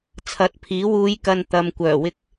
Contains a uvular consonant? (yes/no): no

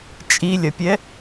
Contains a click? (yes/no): no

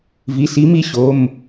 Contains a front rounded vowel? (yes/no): no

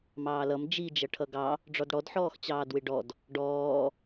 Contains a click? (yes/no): no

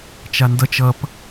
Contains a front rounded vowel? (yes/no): no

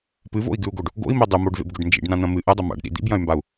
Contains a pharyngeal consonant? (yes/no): no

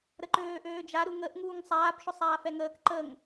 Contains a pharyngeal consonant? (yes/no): no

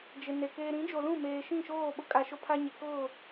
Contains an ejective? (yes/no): yes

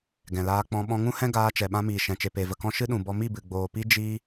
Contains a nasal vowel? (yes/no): yes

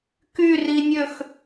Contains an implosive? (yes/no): no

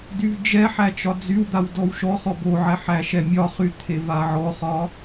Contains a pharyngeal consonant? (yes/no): yes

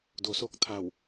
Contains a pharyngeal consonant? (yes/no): no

